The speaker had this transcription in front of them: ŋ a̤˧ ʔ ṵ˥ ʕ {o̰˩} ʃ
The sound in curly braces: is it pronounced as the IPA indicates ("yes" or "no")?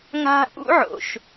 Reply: yes